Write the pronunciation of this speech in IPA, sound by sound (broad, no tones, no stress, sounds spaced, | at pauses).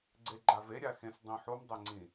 ɡ͡ǀ e ɡ͡ǃ a v e ɾʲ a x ẽ s dˤ ĩ ħ u m dˤ e ŋ͡ǀ ĩ